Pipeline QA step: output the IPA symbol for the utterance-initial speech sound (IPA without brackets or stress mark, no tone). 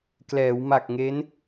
k